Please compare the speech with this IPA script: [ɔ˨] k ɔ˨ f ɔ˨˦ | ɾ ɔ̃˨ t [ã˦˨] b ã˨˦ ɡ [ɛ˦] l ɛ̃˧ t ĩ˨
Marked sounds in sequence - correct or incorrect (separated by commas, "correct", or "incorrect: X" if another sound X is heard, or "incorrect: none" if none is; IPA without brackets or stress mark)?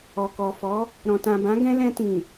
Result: correct, incorrect: ã˨, incorrect: ɛ̃˦